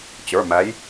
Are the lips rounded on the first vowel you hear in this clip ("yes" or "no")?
no